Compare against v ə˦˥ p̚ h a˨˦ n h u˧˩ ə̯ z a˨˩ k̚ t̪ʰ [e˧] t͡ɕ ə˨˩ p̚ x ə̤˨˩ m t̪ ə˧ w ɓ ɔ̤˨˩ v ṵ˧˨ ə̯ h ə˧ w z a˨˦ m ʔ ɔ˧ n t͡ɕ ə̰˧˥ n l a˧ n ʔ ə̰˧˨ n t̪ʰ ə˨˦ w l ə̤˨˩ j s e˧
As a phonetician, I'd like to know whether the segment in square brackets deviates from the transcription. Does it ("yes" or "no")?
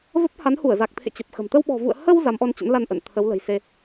yes